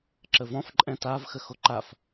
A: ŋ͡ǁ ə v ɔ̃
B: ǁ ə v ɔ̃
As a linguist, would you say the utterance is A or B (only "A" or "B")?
B